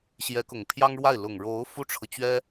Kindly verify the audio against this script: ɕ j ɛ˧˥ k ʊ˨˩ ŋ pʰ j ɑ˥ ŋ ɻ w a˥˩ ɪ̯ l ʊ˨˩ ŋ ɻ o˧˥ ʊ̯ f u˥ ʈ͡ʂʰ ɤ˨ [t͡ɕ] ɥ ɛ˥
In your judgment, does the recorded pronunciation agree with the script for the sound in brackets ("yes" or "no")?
yes